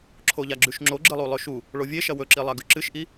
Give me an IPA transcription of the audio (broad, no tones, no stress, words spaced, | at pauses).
ǁʰoʎaɡ͡ǁʉʃŋ͡ǁo ɡ͡ǁɨlˠulˠɵʃu | ɭovʲeʃɐ wɵǁilˠaɡʉ ǁɨʃʔi